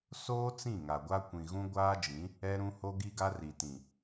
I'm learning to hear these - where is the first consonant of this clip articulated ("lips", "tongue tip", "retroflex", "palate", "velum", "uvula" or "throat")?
tongue tip